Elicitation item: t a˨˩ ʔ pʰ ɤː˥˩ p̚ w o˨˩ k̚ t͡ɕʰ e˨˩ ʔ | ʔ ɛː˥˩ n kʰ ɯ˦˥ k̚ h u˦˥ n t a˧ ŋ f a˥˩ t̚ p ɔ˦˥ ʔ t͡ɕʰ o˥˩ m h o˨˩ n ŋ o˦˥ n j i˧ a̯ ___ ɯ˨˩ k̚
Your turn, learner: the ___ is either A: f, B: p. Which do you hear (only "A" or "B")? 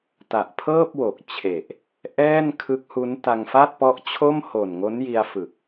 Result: A